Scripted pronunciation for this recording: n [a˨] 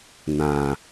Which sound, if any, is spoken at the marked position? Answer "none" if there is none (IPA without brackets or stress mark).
ã˨